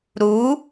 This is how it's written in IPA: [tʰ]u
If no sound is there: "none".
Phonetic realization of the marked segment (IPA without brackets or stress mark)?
ɾ